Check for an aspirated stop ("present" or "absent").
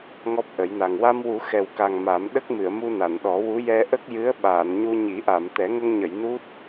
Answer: absent